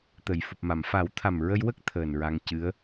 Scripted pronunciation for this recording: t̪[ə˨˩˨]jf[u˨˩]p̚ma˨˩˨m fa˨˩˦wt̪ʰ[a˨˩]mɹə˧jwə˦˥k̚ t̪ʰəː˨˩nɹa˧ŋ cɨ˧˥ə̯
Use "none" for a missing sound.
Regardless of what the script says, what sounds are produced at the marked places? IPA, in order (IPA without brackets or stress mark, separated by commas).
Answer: ə˨˩˨, u˨˩, a˨˩